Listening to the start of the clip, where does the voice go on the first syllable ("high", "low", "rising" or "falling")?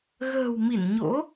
low